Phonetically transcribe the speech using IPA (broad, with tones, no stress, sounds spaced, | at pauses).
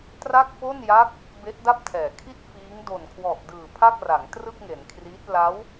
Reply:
t r a˥˩ k̚ p o˥˩ n j a˦˥ k̚ | b e˦˥ ʔ d a˥˩ p̚ tʰ ɛː˩˦ kʰ i˥˩ t̚ f iː˦˥ ŋ d o˨˩ n kʰ w ɔ˨˩ ʔ d ɯː˨˩ pʰ a˥˩ k̚ r a˩˦ ŋ t r ɯ˥˩ k̚ ŋ e˩˦ n kʰ r iː˦˥ t̚ l a˦˥ w